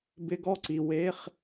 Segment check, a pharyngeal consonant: absent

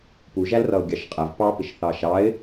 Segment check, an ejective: present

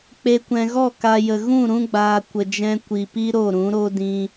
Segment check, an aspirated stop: absent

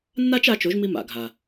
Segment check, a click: absent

